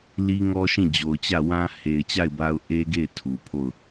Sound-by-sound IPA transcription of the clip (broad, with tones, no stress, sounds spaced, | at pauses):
l i˦ ŋ ɔ˦ ʃ ĩ˦˨ d͡ʑ o˨ ʊ̯ t͡ɕ ä˦˨ w ã˦ h e˨ ɪ̯ t͡ɕ a˦˨ ɪ̯ b a˦ ʊ̯ ʔ e˦ ɡ e˦˨ ɪ̯ tʰ u˨ pʰ o˦˨ ʊ̯